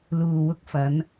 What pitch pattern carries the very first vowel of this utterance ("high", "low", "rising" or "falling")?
low